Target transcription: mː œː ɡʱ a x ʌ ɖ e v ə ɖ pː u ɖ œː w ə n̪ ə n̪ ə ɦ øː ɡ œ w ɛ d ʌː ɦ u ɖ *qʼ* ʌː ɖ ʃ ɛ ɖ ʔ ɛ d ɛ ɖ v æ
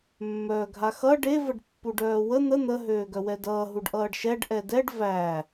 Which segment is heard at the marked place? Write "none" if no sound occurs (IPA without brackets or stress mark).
ʔ